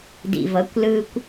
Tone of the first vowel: low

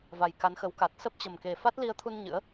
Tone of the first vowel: low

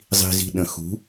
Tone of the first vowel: low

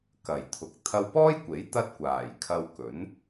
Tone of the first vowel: low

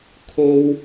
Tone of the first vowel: high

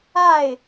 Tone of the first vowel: falling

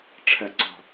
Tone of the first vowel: low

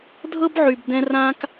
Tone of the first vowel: high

